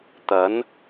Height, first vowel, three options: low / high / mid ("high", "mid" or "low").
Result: low